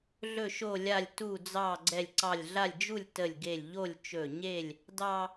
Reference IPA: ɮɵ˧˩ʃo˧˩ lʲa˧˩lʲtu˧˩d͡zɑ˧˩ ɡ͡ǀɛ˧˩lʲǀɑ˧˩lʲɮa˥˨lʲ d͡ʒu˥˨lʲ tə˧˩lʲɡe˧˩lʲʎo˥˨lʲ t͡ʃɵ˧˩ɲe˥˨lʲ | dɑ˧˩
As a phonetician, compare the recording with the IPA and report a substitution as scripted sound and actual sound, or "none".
none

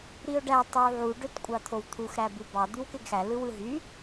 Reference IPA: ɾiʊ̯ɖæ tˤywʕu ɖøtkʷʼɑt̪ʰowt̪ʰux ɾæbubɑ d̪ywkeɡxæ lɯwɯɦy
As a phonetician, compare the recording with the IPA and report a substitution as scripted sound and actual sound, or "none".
none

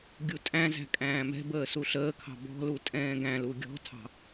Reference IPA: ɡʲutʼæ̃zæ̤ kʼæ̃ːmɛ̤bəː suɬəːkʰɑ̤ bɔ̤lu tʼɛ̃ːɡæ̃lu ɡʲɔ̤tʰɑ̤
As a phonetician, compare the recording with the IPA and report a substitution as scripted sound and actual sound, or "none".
none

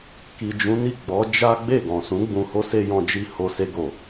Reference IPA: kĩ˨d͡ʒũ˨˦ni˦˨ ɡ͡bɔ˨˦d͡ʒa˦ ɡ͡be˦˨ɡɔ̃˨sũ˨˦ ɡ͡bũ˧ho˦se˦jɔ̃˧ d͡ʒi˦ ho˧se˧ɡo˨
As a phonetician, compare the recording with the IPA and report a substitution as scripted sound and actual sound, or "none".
ĩ˨ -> i˨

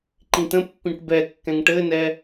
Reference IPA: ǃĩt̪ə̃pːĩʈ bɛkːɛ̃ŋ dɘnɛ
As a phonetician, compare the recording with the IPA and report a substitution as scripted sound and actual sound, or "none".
d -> ʈ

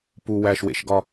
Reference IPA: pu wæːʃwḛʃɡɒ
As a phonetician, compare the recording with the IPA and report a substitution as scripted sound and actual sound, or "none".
none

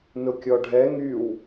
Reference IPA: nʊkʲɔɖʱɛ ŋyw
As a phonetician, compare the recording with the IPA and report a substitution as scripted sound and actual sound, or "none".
none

